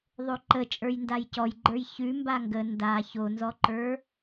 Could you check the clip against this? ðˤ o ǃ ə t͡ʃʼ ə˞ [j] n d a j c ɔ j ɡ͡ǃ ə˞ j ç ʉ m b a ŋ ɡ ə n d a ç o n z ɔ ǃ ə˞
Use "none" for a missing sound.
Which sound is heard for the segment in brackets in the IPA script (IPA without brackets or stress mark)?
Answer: j